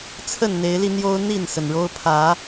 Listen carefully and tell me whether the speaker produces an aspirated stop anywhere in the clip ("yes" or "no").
yes